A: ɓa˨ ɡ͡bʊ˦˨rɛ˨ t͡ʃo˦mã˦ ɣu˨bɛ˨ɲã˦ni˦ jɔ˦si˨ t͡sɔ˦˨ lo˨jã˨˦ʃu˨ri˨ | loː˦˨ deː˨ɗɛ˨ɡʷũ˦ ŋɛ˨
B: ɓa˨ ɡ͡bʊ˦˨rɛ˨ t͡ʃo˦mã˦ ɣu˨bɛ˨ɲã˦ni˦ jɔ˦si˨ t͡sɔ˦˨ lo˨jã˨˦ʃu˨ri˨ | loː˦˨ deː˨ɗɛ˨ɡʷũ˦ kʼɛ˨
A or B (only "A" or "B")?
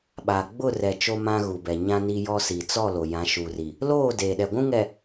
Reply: A